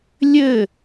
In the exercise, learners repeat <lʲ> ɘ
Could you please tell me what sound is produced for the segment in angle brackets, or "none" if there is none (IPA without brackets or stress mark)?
lʲ